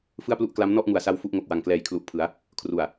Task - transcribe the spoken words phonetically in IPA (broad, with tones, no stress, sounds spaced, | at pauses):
f ɯ˥˩ a̯ p l u˥˩ ʔ k l a˦˥ m n ɔ˥˩ ʔ ŋ u˨˩ a̯ s a˧ w f u˥˩ ʔ ŋ o˨˩ k̚ w a˨˩ ŋ k l ɛː˨˩ j kʰ l u˨˩ ʔ pʰ ɯ˩˦ a̯ | kʰ r u˨˩ a̯